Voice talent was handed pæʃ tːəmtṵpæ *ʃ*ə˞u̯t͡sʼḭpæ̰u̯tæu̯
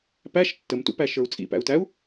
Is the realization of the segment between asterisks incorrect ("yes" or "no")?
no